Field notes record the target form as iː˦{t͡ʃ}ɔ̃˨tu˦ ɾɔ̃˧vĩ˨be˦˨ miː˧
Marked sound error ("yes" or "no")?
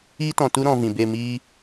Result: yes